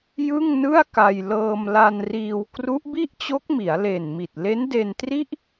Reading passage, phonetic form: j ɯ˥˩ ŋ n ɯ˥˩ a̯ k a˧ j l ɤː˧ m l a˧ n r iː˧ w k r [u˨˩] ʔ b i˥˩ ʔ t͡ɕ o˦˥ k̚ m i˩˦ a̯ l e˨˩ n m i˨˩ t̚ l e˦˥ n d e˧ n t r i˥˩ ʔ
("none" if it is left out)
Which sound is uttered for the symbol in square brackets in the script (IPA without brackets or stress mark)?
u˦˥